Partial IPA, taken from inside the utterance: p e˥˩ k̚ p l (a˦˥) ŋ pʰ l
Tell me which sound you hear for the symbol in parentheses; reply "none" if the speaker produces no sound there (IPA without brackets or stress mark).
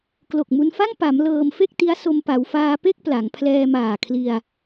a˩˦